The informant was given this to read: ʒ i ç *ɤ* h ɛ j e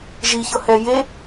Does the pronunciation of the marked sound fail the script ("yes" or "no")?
no